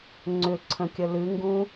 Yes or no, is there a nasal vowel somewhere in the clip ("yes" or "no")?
yes